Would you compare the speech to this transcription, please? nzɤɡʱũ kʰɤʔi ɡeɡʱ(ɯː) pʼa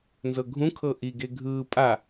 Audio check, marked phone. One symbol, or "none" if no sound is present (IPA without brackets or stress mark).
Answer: ɯː